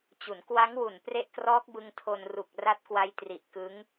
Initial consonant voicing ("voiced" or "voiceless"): voiceless